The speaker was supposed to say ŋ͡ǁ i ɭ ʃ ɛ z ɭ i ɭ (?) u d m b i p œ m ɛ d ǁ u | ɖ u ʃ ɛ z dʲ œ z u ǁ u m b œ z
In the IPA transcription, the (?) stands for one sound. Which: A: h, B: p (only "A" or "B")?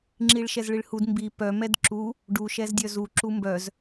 A